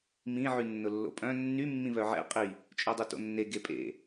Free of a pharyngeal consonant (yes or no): no